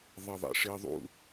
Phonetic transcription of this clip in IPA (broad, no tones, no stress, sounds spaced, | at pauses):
ðˤ ɪ ðˤ ḭ ʂ i ðˤ ṵ